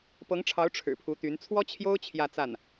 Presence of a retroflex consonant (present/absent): present